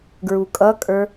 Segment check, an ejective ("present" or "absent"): present